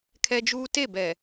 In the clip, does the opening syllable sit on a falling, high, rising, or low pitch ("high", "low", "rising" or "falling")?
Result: high